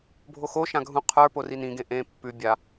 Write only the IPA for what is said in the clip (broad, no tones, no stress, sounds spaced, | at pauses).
bʱ o x o ʃ ã ɡʱ ũ qʰ ə˞ p o r i n ĩ ɡ ẽ ʔ ẽ pː ʉ bʲ a